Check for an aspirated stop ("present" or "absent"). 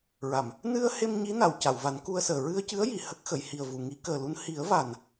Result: absent